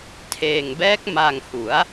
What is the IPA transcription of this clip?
tʰ eː˧ ŋ b ɛː˦˥ k̚ m a˧ ŋ h u˩˦ a̯

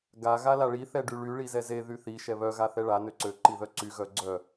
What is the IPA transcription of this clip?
ɡ a ɣ a l a ɭ i θ ɛ ɖ y ɭ y ɭ i z ɛ z e ð y θ i ʃ ɛ β œ ɣ a θ ɛ ɭ a n ø ǀ ø ǃ i ð œ ǀ y ɣ œ ɡ͡ǀ œ

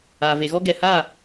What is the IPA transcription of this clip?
aː˨ v e˨ ɣ ɔ˦ ɡ ɛ˨ h aː˦˨

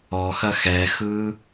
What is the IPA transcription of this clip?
ɔ x ɐ x ɛ x ɯ

